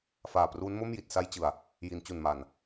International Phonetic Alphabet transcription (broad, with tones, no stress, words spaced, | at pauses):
faː˨˩pruː˦˥nmo˥˩m ji˨˩t̚sa˧jt͡ɕɯ˨˩a̯ | ji˩˦nt͡ɕu˨˩nma˨˩n